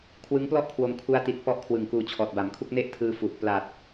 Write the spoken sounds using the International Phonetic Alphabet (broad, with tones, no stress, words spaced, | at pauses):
kʰwɯ˦˥ŋplɔ˥˩ʔkʰwo˧m kʰu˦˥a̯ti˨˩t̚ pɔ˥˩ʔkʰwɯ˨˩ŋ kuː˨˩ t͡ɕʰɔː˨˩t̚ba˩˦mkʰu˥˩k̚ ne˥˩ʔtʰɯː˧fu˨˩ʔ pla˨˩t̚